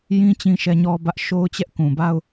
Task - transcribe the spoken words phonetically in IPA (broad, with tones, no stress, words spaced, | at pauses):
jĩ˦ t͡ɕĩ˦ʃɛ˦ɲɔ˦bä˦ʔ ʃo˦ʊ̯t͡ɕɛ˦ʔkũ˨ba˦ʊ̯